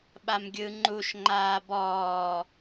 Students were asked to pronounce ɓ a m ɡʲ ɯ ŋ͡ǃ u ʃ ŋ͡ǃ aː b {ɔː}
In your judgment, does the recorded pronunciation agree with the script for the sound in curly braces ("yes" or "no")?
yes